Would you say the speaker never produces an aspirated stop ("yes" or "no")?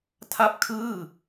no